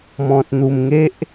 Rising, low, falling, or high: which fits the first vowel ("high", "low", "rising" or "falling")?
low